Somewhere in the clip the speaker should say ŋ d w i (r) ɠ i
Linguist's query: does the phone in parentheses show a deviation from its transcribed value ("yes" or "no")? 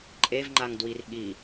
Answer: no